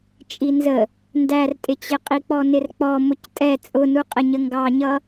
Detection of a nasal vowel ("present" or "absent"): absent